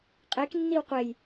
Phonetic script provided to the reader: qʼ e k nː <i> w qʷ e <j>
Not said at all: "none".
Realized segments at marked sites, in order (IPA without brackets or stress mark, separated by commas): i, j